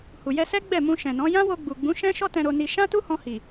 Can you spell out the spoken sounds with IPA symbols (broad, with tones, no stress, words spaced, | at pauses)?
hu˨jɛ˧sɛ˦ɡ͡bɛ˦˨ mũ˧ʃɛ̃˨nɔ̃˨˦ jã˦wo˧ɡ͡bu˨ɡ͡bũ˨˦ ʃɛ̃˦ʃɔ˦ tɛ̃˧ ɾo˧ni˧ ʃã˦ tu˦hɔ̃˧hi˨